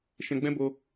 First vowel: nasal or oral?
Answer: nasal